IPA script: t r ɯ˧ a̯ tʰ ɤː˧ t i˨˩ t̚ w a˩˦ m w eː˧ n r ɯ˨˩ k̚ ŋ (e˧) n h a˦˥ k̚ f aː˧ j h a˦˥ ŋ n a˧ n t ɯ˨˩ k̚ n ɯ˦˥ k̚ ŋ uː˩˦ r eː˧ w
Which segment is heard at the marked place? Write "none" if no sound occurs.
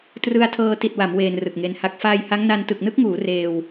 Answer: e˧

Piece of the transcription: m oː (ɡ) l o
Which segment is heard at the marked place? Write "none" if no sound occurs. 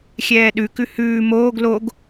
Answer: ɡ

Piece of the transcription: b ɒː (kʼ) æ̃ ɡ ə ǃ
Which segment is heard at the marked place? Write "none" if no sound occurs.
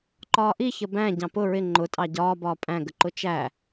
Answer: pʼ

